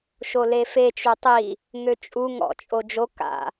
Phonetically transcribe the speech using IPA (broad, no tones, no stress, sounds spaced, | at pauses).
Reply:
ʃ o l e f e t͡ʃ u tˤ i | ŋ ø t͡ʃʼ u ŋ ɔ̰ t͡ʃʼ o d͡ʒ o k a̰